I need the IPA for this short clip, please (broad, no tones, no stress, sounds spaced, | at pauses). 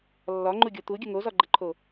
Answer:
lː ɒ ŋ͡ǃ u ɡʲ o t̪ u ɡʲ ə ŋ o z ɒ ɡ͡ǃ ə ǃʰ o